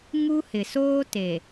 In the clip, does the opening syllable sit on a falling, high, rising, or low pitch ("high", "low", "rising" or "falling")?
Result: high